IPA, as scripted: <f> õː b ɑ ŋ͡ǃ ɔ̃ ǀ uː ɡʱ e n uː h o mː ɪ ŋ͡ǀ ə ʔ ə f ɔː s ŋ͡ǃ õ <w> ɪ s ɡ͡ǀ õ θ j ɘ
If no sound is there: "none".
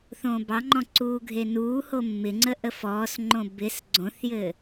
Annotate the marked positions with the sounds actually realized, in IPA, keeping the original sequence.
θ, b

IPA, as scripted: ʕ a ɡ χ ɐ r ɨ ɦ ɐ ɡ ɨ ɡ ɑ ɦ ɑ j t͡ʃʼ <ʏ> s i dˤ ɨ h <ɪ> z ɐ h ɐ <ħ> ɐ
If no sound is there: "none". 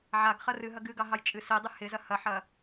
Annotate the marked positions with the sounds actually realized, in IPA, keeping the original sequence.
ɨ, ɪ, ħ

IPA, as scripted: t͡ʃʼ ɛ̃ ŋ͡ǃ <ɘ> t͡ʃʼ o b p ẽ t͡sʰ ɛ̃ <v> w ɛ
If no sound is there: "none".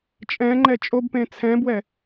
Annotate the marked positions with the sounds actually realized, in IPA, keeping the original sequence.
ɛ, b

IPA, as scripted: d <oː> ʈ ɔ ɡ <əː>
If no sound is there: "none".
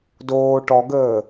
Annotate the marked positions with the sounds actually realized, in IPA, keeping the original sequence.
oː, əː

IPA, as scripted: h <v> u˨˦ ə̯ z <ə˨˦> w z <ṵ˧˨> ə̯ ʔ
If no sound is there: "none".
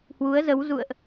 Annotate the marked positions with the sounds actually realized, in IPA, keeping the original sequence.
w, ə˨˦, ṵ˧˨

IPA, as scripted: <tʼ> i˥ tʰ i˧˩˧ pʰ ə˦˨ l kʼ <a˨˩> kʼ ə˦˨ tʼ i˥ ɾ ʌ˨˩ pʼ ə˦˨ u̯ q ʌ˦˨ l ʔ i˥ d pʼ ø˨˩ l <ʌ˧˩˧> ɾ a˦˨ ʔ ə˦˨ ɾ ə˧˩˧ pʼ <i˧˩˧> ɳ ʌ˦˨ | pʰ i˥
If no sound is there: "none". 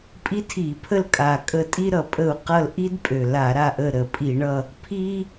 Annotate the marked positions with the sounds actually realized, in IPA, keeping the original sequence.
pʼ, a˨˩, a˧˩˧, i˧˩˧

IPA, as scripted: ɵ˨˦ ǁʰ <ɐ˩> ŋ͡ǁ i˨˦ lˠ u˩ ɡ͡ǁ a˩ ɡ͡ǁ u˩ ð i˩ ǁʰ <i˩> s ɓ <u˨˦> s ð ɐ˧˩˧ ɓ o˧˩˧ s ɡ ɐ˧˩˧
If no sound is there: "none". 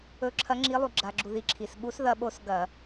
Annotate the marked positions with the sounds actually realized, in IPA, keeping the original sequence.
ɐ˨˦, i˩, u˨˦

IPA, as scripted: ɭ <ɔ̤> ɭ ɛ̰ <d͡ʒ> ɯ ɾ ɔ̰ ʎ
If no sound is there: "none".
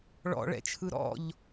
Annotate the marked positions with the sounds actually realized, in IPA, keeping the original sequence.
ɔ̰, t͡ʃʰ

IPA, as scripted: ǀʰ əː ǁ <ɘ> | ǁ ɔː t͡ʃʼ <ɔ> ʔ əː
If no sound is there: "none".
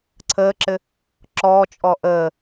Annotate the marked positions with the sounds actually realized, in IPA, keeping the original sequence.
ɘ, ɔ

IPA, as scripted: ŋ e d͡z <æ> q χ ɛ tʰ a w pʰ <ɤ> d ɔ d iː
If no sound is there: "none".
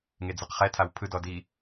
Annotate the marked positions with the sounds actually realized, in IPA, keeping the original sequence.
ɛ, ɯ

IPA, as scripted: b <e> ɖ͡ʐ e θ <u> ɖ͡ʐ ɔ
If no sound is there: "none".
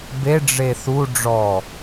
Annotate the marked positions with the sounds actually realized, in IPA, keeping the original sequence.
e, u

